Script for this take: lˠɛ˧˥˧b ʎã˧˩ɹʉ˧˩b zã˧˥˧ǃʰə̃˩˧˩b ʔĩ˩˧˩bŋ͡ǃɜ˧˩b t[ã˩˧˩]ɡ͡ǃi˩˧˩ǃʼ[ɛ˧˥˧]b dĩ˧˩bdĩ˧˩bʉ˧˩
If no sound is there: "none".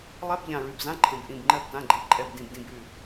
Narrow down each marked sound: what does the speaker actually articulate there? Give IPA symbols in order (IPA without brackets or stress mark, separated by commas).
ã˩˧˩, ɛ˩˧˩